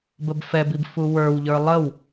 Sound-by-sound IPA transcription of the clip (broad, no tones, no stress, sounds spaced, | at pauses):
b ə b f ɛ b i b f u w ə˞ w ʎ ə˞ lˠ ə w